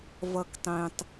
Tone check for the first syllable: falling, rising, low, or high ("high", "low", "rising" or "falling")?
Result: low